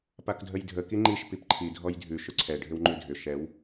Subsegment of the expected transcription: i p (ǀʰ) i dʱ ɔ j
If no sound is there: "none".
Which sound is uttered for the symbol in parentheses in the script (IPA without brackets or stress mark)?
ǃʰ